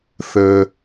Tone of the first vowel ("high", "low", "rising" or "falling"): high